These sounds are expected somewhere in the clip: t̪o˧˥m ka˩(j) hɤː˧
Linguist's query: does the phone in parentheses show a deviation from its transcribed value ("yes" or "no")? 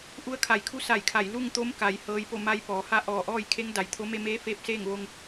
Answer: no